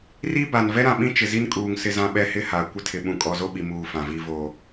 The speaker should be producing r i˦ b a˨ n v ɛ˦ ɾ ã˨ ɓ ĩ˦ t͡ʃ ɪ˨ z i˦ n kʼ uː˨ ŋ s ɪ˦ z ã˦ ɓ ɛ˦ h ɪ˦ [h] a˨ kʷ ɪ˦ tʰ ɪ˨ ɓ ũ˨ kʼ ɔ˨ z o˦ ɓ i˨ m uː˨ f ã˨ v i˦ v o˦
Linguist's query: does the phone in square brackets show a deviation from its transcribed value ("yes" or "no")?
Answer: no